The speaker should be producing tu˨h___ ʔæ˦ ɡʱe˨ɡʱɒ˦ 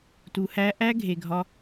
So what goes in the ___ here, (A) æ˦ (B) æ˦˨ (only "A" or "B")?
A